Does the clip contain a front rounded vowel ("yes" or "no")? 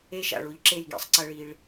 no